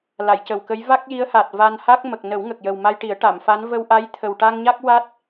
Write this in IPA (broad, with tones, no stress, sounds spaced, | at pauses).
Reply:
l a˨˩˨ j c ə˨˩ w k ə˧˥ j v a˦˥ k̚ j i˧˥ ə̯ h a˨˩ t̚ v a˧ n h a˦˥ k̚ m ə˨˩ k̚ n ə˨˩˦ w ŋ ə˨˩ k̚ j ə˨˩ w m a˧ j ʈ i˨˩˦ ə̯ ʈ a˨˩˨ m f a˧˥ n v ə˧ w ʔ a˧˥ j t̪ʰ ə˨˩ w ʈ a˧ ŋ ɲ a˦˥ k̚ w a˦˥ t̚